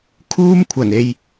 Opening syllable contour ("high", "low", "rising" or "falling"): high